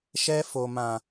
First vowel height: mid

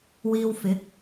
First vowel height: high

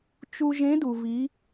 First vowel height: high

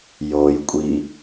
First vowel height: mid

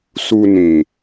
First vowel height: high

